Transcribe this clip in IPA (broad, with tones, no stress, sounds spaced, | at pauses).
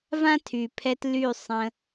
v ã˦ tʰ y˨ pʰ ɛ˧ t l y˦˨ sˤ ə̃˧